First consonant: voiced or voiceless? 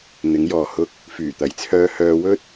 voiced